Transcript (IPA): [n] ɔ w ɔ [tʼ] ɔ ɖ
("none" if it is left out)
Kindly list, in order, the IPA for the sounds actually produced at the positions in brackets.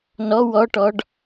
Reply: n, ʈ

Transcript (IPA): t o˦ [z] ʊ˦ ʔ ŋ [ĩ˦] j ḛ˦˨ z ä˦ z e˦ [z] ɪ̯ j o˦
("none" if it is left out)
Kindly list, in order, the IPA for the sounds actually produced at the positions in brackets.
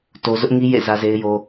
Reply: z, i˦, none

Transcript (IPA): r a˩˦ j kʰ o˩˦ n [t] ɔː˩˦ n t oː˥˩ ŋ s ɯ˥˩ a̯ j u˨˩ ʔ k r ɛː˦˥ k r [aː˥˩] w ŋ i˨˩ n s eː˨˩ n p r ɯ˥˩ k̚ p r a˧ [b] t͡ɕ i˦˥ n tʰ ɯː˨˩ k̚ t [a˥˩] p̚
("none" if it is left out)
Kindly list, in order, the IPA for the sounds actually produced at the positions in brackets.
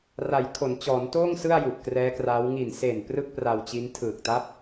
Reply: t͡ɕ, aː˦˥, w, a˦˥

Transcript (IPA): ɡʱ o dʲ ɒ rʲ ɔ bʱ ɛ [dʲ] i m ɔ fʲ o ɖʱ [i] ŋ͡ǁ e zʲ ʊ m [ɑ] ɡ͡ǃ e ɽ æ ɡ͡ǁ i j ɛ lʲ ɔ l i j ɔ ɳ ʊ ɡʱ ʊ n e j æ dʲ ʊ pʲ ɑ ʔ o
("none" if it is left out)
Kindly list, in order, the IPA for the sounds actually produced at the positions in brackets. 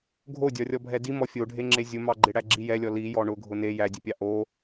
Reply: d, e, ɑ

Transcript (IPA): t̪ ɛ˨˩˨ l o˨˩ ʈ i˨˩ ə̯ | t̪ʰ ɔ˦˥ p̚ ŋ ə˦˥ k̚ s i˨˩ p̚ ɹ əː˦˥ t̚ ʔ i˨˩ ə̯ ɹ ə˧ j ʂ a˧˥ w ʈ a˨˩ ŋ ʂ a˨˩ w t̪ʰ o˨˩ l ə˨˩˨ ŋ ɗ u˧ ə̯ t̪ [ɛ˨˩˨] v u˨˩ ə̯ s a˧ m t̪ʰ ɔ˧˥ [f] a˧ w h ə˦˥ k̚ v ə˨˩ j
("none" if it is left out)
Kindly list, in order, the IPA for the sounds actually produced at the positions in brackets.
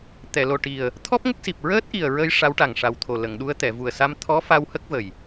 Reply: ɛ˨˩˨, f

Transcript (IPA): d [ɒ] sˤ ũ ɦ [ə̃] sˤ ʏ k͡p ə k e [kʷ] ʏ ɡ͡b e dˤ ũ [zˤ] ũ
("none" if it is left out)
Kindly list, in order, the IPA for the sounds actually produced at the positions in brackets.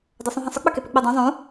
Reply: ɒ, ə̃, p, zˤ

